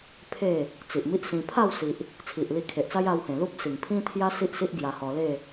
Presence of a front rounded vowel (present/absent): absent